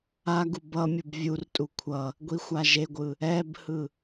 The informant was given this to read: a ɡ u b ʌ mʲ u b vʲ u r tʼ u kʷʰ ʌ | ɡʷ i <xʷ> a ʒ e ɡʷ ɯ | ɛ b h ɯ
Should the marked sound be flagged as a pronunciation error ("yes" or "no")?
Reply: no